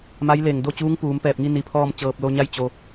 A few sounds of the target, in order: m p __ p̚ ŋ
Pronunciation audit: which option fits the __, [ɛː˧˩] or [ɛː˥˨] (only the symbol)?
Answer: ɛː˧˩